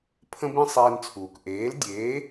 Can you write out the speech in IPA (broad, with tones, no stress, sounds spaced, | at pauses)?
pʰ ə̃˧ b ĩ˧ sˤ eː˧ n t͡sʰ uː˩ k ʔ eː˩˥ l dʲ eː˩˥